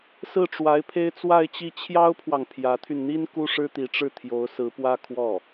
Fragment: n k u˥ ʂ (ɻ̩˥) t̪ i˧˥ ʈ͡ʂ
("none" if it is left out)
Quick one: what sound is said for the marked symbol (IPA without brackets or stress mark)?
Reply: ɻ̩˥